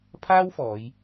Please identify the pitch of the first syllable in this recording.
high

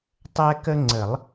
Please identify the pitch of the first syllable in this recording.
high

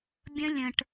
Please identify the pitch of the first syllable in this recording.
high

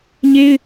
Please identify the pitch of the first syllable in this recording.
high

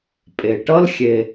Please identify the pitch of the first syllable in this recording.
low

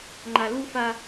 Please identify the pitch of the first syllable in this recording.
low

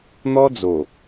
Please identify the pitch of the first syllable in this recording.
high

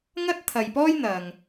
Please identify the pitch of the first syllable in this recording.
high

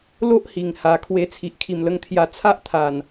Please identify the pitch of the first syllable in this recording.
high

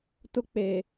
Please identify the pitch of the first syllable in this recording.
high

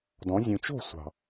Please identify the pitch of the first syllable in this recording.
rising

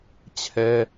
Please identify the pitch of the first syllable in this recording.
high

